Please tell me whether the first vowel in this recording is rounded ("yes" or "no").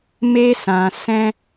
no